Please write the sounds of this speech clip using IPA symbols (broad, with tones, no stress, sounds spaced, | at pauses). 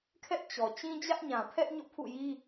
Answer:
kʰ ɛ˦ ʔ t͡ɕ ɔ˨ t͡ɕ ĩ˦ d͡ʑ ä˦ ʔ ɲ ã˨ pʰ ɛ˦ ʔ ɲ o̰˦˨ pʰ ṵ˦˨ j i˦